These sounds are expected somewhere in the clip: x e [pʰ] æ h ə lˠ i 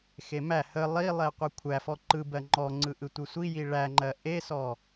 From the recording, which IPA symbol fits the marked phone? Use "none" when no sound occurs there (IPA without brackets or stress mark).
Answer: m